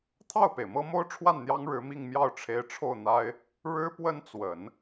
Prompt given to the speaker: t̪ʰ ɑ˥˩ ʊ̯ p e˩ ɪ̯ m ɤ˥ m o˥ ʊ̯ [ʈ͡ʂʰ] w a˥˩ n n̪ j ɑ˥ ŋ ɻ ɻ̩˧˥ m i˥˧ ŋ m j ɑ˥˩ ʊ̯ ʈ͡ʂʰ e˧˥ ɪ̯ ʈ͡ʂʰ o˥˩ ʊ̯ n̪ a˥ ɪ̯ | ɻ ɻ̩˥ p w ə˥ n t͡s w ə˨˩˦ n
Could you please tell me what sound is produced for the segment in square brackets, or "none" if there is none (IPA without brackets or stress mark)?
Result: ʈ͡ʂʰ